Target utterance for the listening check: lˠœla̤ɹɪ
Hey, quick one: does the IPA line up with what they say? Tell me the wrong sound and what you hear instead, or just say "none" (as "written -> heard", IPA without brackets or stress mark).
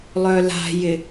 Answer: ɹ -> j